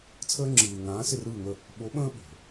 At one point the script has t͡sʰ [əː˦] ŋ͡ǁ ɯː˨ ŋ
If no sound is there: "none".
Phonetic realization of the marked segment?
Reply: əː˦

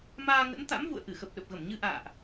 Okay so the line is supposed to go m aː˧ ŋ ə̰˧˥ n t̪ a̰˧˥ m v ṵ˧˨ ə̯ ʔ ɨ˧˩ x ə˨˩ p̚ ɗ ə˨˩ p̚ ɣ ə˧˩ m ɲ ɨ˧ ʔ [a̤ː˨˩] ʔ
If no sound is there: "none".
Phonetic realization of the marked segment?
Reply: a̰ː˧˨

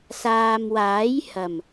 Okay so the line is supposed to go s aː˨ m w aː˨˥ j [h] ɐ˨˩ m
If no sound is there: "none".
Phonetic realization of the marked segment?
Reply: h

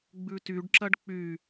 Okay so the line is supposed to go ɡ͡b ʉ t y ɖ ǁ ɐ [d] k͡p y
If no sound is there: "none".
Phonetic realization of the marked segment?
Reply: ɖ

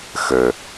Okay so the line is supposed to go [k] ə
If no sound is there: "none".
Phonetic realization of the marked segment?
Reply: x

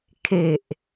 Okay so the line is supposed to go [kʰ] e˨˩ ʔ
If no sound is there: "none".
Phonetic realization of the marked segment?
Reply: kʰ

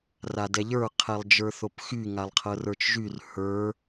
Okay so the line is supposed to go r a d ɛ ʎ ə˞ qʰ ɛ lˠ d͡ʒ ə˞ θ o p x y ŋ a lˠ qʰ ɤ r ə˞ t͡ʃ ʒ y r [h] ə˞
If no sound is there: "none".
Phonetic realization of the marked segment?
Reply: h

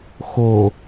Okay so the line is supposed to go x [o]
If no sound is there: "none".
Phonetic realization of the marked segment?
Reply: o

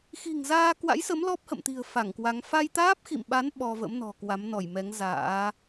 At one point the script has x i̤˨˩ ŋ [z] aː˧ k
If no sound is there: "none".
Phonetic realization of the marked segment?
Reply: z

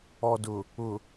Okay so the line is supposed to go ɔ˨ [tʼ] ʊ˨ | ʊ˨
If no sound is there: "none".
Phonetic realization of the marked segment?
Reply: d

